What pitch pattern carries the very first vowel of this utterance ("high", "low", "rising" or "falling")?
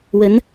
rising